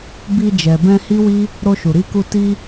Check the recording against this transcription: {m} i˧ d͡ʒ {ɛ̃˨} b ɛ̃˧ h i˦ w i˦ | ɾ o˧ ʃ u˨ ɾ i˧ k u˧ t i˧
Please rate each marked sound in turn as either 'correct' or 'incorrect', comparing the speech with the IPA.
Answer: incorrect: b, incorrect: ɛ˨

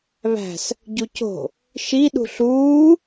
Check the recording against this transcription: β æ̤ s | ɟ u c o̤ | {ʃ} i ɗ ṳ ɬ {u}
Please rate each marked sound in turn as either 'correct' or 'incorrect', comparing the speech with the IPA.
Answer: correct, incorrect: uː

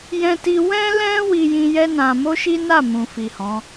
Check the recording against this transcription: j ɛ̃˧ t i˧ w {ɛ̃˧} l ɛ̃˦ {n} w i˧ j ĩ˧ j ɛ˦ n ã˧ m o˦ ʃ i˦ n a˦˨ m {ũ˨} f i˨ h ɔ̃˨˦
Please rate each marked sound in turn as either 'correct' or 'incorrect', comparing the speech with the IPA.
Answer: incorrect: ɛ̃˦, incorrect: none, correct

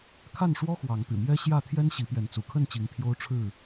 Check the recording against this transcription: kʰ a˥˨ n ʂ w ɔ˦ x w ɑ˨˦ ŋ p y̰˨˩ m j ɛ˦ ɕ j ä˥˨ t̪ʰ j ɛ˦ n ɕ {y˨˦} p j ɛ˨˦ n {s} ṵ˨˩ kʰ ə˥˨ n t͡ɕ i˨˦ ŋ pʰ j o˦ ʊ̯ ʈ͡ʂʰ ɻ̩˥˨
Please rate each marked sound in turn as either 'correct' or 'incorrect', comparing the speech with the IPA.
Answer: incorrect: i˨˦, incorrect: t͡s

